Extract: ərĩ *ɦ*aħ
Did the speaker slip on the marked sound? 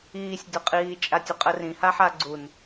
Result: yes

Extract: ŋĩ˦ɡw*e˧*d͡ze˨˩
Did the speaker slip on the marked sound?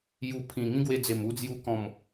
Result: no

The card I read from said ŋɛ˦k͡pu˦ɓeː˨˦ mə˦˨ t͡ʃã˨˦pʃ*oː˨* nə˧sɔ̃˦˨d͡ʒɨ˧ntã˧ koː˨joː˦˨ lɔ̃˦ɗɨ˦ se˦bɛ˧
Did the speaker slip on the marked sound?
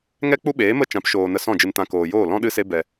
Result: no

